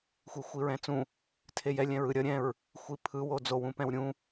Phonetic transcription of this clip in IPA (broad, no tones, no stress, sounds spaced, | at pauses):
xʷ i xʷ i ɹ ɛ̃ t͡s ũ | tʰ e j ɛ lʲ ɛ̃ ɹ ɯ ɾʲ ʌ ɾʲ ɛ̃ ɹ | xʷ i pʰ ɯ w o d͡z o w ũ p ɛ̃ w ɾʲ ũ